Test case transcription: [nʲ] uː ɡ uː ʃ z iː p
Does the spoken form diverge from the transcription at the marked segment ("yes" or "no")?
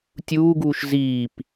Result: yes